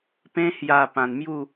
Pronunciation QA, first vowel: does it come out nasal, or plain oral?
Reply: nasal